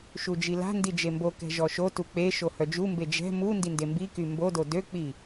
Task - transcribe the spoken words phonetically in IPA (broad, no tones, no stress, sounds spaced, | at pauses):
ʃ u d͡ʒ i l a̤ n d i d͡ʒ e m b o k ɛ̤ ʒ ɔ ʃ o t u k͡p e ʃ o h œ d͡ʒ u m b e d͡ʒ ɛ̤ m u n d i n d e m b i k y m b o d o d ø k͡p i